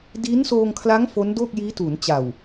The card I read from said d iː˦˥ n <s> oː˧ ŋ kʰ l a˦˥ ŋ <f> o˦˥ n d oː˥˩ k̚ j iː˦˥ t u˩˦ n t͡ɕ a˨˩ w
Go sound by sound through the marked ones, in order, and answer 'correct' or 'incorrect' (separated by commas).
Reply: correct, correct